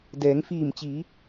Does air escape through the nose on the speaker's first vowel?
no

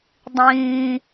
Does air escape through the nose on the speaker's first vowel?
yes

